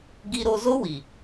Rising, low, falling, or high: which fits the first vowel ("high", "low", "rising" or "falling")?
high